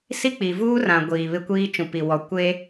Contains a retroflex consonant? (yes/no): no